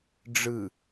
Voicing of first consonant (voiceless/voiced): voiced